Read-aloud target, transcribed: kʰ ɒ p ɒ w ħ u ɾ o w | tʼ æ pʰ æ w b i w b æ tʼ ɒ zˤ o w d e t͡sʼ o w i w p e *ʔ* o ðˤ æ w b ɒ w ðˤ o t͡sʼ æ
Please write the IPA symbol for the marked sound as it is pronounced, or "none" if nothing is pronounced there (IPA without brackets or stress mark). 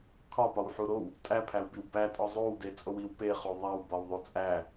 χ